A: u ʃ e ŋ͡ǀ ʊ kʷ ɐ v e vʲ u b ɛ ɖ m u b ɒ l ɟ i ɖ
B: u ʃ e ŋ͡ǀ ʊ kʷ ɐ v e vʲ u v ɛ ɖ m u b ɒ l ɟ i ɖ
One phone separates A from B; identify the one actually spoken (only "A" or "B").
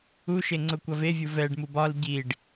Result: B